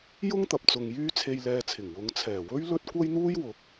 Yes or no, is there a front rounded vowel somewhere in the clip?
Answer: yes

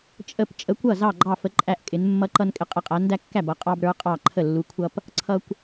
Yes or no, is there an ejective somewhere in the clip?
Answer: yes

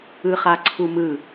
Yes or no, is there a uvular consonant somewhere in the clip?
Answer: yes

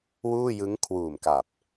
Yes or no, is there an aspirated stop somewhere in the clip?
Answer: yes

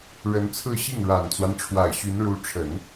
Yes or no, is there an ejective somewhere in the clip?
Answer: no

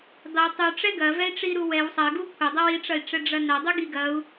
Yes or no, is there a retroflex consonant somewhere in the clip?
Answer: yes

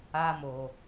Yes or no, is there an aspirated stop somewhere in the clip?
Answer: no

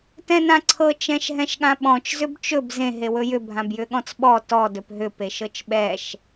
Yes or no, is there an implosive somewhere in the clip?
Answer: yes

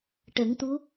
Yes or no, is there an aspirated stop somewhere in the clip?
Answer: no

